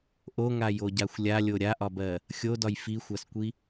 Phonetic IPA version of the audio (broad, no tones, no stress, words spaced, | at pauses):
ʔoŋajoɟaxʷ lʲalʲo ɾʲaʔɒbɜ | xʲodɒj fixʷaskʷi